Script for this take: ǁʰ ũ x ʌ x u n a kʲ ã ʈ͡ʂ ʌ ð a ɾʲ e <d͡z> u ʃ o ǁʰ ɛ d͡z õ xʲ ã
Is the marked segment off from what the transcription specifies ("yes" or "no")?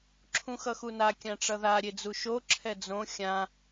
no